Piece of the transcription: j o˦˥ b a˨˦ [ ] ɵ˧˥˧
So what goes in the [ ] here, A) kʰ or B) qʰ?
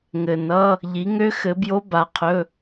B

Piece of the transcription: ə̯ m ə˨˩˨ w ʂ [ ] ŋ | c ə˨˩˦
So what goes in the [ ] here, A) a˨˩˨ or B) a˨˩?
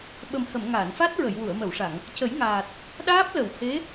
A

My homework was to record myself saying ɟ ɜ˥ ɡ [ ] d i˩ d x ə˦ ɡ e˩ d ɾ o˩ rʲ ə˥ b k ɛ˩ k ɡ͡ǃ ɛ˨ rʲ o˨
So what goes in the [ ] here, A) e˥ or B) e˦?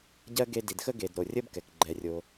B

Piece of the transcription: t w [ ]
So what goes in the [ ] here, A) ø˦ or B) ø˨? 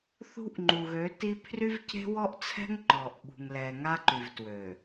B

